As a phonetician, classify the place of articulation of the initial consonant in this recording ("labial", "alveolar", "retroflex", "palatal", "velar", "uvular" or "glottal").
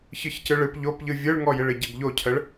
palatal